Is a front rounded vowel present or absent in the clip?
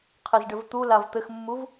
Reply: absent